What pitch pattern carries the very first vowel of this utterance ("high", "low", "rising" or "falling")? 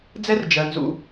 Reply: high